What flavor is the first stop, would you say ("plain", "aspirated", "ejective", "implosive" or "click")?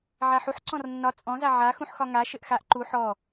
click